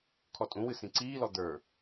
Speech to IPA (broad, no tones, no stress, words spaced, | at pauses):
kʰɔtʼũwɨ sĩǀiːlɔ d̪ə˞